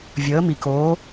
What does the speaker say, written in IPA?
vʲ əː˩˥ m i˩ k oː˩˥

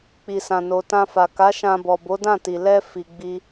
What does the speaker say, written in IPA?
k͡p i˨ s ã˨ n o˨ t ã˧ f a˨ k a˨˦ ʃ ã˧ b ɔ˨ b o˨˦ d ã˦˨ t i˨ l ɛ˧ f i˨ ɡ͡b i˧

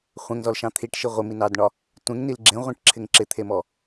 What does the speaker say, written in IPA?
χʷ ẽ ŋ z ɔ l ʃ ɑ̃ t̪ʰ i ʈ ʃ i ʁʷ ɪ m i n ɑ d ɳ ɒ | tʷ ẽ ŋ n i l ɡ͡ǁ ẽ ʁʷ ĩ ʈ ǁʰ ɪ ŋ ǁ ɪ t̪ʰ e m ɔ

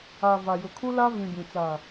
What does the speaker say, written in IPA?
a˨ v a˨ j ʊ˨ kʰ u˦ l a˦ v ĩ˨ b ĩ˨ t͡s a˨

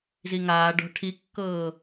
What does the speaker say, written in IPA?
z i ŋ aː ɖ ɔ̤ ʈʰ i kː ɤː

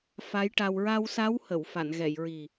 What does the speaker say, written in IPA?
f a˧˥ j ʈ a˧ w ɹ a˧ w s a˧˥ w h ə˨˩˨ w f a˨˩˨ n ɣ ɛ˨˩˨ j ɹ i˨˩

